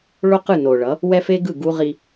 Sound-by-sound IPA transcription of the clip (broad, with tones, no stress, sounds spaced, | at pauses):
ɭ o˦ q ɯ˦˨ n o˨ ɭ ʌ˨˦ | w ɛ˦ f e˦ ɡ ɯ˦˨ ɡ u˦ ʁ i˦